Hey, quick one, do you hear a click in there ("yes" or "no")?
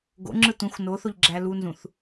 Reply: yes